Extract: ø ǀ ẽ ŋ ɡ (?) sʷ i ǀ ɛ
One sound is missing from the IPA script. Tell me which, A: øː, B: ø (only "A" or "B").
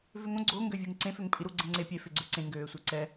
A